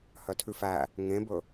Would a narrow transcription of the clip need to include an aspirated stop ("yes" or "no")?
yes